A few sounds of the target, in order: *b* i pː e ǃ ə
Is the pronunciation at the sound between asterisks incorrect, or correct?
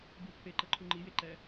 correct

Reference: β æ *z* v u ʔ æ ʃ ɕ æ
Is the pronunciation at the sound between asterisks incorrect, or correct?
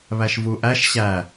incorrect: ʃ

